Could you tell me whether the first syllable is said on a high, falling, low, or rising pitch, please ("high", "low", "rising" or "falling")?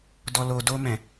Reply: low